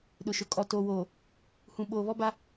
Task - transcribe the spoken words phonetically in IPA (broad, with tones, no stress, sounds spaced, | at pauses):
ɗ ʊ˨ ʃ ʊ˨ kʼ ɔ˨ t oː˨ w oː˨ | h ũ˨ ɓ oː˨ β ɔ˦ b a˦